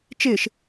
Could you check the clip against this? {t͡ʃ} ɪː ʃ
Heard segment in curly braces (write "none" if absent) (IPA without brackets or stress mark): t͡ʃ